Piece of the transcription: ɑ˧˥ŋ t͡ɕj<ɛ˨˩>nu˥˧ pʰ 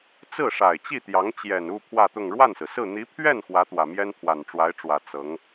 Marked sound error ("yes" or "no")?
no